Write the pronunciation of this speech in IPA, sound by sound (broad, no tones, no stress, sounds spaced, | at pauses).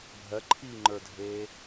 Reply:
bʱ ɜ ǃʰ iː ŋ͡ǃ ə˞ dʱ eː